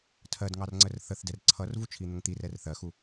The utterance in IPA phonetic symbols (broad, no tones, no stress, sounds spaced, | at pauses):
tʰ ɜ d ŋ ɑ r ŋ͡ǀ ə r θ ə θ d ɛ r ǀʰ ʌ r v u t͡ʃʰ i n̪ ə ŋ t̪ i r ɛ r θ ɜ x u